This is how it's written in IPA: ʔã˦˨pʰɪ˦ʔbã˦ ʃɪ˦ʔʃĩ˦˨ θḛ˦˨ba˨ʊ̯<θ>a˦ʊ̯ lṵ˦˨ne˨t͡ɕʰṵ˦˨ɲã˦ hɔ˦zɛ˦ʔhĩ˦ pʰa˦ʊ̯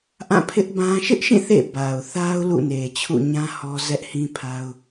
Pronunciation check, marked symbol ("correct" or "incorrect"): correct